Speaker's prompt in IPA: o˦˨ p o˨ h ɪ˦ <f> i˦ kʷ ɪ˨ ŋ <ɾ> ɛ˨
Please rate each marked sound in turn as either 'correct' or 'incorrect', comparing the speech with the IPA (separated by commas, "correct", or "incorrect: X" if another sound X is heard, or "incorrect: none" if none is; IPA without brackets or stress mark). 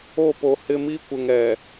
incorrect: m, correct